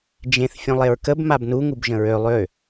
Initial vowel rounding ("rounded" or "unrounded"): unrounded